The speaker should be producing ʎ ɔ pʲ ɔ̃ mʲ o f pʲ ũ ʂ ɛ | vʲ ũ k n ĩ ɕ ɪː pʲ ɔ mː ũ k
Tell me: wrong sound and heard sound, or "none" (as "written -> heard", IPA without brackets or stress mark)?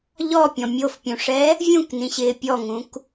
mː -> ŋ